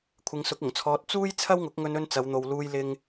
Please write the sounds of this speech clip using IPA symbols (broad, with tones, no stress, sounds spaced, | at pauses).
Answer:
kʷʰ ɪ˨˧ ŋ s ʊ˨˥ k̚ ʊ˨˩ ŋ t͡sʰ ɔː˧ t̚ t͡s uː˥ j t͡sʰ ɐ˥ w ŋ ʊ˨˥ k̚ ŋ ɵ˧ n ɵ˥ n t͡s ɐ˨˧ w n̪ o˨ w l uː˨ j l ɪ˧ ŋ